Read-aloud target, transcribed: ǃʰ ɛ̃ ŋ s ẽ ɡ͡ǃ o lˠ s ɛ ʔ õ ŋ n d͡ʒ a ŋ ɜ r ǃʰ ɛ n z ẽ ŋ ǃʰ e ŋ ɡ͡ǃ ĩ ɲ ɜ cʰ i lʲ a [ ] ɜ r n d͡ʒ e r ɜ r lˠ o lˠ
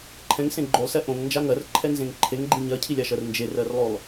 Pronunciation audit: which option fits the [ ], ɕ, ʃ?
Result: ʃ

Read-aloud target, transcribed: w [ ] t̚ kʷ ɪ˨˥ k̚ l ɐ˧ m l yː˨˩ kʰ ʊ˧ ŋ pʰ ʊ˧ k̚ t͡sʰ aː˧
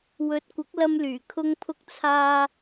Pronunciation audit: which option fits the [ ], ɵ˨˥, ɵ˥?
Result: ɵ˨˥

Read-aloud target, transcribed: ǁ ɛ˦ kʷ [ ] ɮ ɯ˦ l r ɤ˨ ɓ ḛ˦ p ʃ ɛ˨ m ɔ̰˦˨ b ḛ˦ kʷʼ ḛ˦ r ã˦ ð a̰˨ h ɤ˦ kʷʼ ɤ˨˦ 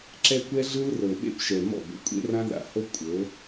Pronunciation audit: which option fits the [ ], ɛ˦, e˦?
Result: ɛ˦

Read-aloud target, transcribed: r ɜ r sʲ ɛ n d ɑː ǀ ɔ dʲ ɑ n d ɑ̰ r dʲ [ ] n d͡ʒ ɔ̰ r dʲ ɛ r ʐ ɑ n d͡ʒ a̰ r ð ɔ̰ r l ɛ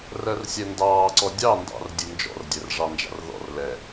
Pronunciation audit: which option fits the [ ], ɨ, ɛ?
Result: ɨ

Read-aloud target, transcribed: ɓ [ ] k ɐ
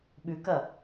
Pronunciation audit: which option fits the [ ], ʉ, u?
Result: ʉ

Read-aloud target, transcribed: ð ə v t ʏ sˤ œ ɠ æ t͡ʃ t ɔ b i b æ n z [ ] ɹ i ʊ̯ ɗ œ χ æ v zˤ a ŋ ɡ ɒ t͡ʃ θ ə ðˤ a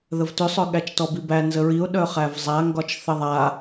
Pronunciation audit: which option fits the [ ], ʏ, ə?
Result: ə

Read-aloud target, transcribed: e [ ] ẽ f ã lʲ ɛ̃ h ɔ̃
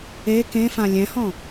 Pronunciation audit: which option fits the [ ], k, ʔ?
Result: k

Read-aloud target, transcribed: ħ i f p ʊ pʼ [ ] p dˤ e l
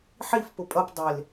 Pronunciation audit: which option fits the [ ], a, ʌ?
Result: ʌ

